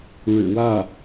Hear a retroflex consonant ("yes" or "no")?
yes